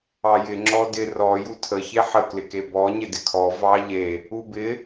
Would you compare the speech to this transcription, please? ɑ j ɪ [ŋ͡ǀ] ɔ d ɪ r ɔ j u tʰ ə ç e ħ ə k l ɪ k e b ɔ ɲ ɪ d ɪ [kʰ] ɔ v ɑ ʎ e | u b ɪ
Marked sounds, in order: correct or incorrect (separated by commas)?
incorrect, correct